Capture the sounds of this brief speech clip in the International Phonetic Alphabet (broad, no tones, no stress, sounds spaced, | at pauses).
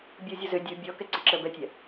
bʲ u zʲ u z ø dʲ u bʲ ɔ k ɛ ǀ ə ǁ əː b ɛ tʲ ɛ